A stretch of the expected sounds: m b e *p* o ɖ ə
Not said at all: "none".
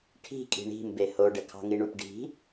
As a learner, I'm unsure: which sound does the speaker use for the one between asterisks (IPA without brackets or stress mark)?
h